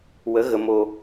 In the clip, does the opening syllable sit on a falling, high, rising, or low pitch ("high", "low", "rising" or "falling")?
rising